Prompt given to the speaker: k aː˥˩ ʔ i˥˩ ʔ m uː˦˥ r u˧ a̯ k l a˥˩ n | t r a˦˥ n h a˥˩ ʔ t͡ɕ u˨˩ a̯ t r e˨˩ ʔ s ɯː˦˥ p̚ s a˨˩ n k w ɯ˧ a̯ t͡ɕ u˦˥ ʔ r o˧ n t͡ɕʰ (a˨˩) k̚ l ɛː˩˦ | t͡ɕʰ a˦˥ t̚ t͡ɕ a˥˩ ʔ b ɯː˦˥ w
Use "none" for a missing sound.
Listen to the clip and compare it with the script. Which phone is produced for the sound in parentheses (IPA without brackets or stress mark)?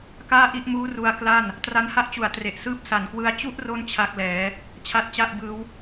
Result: a˦˥